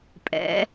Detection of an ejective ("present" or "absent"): present